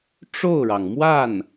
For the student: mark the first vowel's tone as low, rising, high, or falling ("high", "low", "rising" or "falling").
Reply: falling